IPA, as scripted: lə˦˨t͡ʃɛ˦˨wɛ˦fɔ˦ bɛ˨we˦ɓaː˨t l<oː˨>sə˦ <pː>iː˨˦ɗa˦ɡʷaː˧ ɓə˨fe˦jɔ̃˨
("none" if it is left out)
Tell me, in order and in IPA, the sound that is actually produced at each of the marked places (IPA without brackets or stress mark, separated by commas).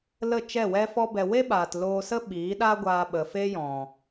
oː˧, ɓ